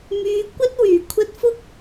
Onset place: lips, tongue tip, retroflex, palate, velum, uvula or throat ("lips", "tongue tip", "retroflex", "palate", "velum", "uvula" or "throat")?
lips